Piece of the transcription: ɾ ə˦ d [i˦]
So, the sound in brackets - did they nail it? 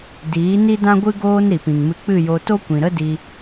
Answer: no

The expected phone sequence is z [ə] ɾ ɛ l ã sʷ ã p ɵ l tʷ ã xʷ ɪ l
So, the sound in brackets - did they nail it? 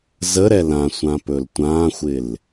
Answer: yes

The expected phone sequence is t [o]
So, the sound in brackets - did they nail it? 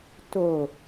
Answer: yes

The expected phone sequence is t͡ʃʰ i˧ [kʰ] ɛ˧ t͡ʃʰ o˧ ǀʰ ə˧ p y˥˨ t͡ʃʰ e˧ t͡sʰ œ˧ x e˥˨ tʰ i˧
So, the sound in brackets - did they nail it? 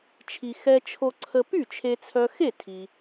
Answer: no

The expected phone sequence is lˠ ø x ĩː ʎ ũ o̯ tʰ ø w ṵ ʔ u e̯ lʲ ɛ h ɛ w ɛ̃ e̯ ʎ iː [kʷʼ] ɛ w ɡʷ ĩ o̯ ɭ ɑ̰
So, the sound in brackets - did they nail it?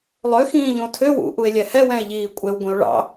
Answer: yes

